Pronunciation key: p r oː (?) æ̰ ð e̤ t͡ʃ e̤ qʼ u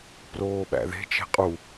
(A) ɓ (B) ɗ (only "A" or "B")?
A